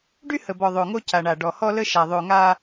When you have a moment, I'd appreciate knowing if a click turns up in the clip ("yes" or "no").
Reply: no